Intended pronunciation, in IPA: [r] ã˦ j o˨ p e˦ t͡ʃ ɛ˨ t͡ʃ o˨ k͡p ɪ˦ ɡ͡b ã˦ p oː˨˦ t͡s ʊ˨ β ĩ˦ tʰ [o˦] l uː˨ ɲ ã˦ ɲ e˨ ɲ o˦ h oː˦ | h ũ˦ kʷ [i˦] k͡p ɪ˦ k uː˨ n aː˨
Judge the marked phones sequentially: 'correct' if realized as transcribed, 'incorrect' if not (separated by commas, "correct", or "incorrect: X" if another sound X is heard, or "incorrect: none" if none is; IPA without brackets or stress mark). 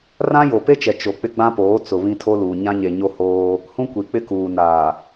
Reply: correct, correct, incorrect: i˨